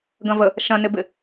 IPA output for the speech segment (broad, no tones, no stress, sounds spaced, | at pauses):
ɡ ɐ̃ v ə | ʃ ɐ̃ n ɪ b ɪ